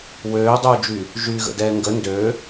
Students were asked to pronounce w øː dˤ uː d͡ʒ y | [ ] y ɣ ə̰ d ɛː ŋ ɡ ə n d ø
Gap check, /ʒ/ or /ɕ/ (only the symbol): ʒ